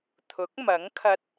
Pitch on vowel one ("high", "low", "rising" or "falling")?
rising